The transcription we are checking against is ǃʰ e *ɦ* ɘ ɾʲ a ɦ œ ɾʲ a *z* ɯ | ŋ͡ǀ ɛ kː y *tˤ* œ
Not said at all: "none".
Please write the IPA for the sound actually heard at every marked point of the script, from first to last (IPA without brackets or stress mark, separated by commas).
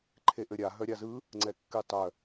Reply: ʔ, z, tˤ